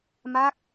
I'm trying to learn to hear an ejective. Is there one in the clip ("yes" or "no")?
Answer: no